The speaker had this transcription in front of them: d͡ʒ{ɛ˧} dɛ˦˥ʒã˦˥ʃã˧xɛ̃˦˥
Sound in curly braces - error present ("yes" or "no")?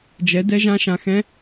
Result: yes